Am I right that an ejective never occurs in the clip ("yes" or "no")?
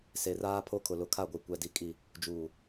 no